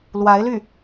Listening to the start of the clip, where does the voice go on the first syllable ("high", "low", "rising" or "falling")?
rising